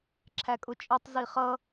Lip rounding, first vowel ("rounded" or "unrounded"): unrounded